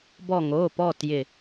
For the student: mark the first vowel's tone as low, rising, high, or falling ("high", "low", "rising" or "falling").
falling